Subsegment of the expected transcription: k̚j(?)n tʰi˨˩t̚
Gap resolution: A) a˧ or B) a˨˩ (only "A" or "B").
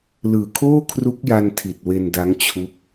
A